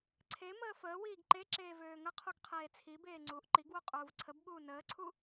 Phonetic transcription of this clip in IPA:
ǀʰ e m əː f əː w iː ɡ ǃ e ǁ eː v øː ŋ ə qʰ u ɡ qʰ eː t͡sʰ i b eː ŋ͡ǀ uː ʔ ǃ i ɡ w u qʼ uː v ǀʰ ə b ɓ uː n əː ǀʰ u

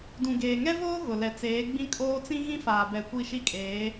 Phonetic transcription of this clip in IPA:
d ũ˨ ɡ eː˨ ŋ ɛ˦ v oː˦ ɣ ʊ˨ l ɛ˨ t͡s eː˨˦ ɡ͡b ĩ˦ kʼ oː˦ t͡s ĩ˦ ɣ ĩ˦ f aː˨ b ɛ˨ kʷ i˦˨ ʃ i˦ kʼ eː˨˦

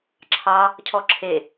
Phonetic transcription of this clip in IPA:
ǁʰ ɑ | cʰ ɔ ǁʰ e

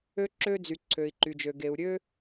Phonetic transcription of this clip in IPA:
ø˥ ǁ ø˥ d͡z y˩ ǀʰ ø˩ i̯ ǃ y˩ d͡ʒ ø˩ ɡ e˩ u̯ ɾʲ ø˥

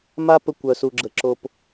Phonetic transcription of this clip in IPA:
m a˦ p ə˧ kʷ œ˨ s u˨ ɡ͡ǁ ə˨ ǁ o˨ p

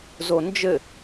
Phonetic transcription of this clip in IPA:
z o n d͡ʒ ɘ

